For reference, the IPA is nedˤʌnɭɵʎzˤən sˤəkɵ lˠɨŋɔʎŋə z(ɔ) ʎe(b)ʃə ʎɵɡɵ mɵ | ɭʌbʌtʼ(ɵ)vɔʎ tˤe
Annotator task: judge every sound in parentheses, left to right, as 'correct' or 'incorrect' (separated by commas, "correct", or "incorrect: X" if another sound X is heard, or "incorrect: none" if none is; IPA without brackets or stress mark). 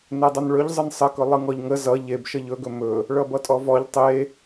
incorrect: ʌ, correct, incorrect: ɔ